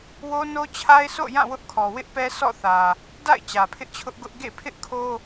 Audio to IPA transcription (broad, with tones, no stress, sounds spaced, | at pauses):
w o˦ n o˦ t͡ɕʰ a˦ ɪ̯ s o̰˦˨ j ã˦˨ w ʊ˦ ʔ kʰ ɔ˨ w ɪ˦ ʔ p ɛ˦ s ɔ̰˦˨ θ ä˨ | d a̰˦˨ ɪ̯ t͡ɕ ä˨ pʰ ɪ˦ ʔ t͡ɕʰ ʊ˦ ʔ ɡ ʊ˦ ʔ ɡ ḛ˦˨ pʰ ɪ˦ ʔ kʰ o˦